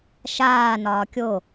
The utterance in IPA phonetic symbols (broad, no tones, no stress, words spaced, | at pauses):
ʃaːnɒː kʲo